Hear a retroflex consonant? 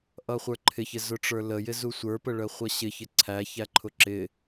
yes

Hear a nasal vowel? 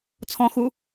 yes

